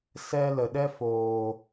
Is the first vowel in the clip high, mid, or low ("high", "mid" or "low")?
mid